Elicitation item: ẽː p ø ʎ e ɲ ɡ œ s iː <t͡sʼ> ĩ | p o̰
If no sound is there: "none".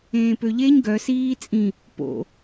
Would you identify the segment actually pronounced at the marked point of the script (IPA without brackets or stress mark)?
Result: t͡sʼ